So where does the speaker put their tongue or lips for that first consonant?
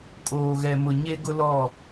velum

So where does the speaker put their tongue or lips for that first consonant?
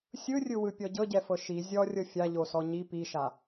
tongue tip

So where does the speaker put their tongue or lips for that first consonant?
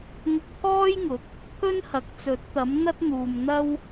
velum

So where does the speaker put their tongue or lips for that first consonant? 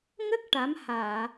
velum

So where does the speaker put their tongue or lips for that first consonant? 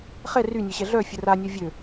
uvula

